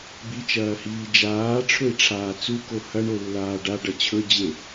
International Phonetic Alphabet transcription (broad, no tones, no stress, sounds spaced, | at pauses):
b i t͡ʃ ɐː h iː d͡ʒ aː ʈ͡ʂʰ ɵ i̯ ʈ͡ʂʰ aː t͡s u k o h ɐ ɳ o lː aː ɖ a ɖ ɐ t͡ɕʰ ɵ d͡ʑ e